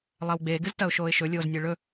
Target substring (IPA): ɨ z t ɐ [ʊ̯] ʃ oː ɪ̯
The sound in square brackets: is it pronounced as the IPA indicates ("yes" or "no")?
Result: yes